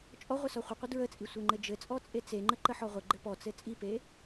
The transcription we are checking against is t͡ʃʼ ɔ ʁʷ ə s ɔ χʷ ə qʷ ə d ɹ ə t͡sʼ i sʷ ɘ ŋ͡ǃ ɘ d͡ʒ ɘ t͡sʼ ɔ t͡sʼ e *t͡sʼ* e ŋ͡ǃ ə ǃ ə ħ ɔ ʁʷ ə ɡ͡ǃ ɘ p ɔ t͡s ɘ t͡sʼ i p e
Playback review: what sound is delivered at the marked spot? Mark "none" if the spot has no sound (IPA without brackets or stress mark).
t͡s